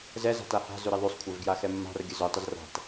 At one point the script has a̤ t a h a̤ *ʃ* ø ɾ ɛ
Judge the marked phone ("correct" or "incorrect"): incorrect